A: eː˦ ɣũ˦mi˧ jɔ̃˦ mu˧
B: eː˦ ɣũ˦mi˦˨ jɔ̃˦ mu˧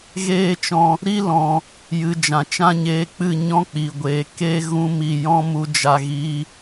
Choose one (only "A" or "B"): B